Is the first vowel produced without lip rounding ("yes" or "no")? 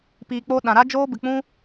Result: yes